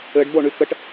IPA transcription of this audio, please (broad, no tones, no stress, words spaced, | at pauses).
ɘɖboɳy kəʈ